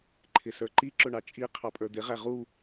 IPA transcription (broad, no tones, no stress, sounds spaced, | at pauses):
ǃʰ ɪ s ə˞ ǃ i ǁ ʊ ɳ ɑ t͡ʃʼ i qʰ ɑ pʼ ə˞ d̪ ɪ ʁ æ ʁ u